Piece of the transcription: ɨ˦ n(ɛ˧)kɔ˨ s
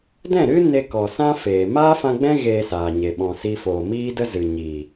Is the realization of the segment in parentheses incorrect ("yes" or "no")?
yes